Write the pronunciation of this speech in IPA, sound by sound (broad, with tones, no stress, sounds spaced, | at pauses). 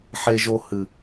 ħ e˧ ʒ o˧ h ɨ˨